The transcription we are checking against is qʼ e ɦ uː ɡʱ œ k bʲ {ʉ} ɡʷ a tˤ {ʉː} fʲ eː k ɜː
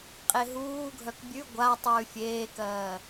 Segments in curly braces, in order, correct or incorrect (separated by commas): correct, correct